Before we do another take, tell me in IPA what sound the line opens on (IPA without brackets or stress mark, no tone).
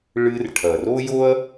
ɭ